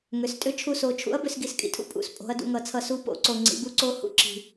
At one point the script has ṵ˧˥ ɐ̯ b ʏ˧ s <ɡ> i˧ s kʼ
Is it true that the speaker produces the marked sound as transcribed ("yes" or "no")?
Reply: yes